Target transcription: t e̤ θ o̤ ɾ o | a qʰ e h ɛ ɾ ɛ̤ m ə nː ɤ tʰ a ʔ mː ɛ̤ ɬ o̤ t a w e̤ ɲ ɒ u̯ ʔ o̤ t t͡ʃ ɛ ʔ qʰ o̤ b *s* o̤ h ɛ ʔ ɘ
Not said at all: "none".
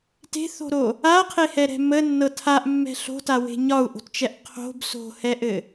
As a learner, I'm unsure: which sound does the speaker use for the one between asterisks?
s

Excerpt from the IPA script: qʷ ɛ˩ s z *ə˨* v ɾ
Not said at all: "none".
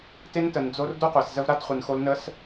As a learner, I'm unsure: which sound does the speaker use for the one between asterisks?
ə˦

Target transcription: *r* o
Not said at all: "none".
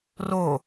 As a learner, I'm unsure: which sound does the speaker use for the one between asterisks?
r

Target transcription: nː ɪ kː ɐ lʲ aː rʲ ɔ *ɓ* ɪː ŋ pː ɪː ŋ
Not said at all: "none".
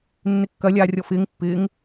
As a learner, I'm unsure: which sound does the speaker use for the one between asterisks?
f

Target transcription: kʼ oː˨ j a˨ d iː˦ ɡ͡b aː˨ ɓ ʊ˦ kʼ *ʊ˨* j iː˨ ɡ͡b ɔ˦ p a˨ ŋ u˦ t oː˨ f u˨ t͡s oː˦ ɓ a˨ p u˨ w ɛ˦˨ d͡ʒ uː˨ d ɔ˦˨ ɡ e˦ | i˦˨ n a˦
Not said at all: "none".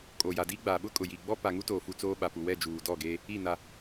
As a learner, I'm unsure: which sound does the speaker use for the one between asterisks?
ʊ˨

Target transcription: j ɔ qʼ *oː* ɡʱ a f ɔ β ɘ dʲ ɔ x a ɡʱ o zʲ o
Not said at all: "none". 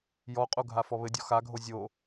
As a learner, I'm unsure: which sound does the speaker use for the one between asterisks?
o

